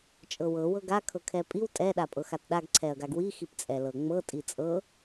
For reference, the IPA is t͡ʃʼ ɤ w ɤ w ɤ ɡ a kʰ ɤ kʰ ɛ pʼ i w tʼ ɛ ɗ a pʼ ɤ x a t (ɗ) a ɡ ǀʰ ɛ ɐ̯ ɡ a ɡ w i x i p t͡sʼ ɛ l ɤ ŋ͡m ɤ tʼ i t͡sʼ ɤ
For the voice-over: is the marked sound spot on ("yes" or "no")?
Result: yes